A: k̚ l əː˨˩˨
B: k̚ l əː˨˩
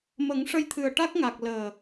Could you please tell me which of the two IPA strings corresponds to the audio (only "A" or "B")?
B